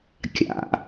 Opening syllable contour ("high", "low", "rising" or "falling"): low